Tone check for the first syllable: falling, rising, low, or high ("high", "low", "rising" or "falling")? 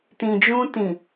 low